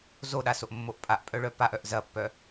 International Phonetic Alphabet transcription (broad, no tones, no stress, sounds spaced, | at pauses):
z o ɗ a s o ʔ mː o ʔ pʼ a ʔ pʼ œ ɭ œ p a ʔ œ ʔ z ɐ pː œ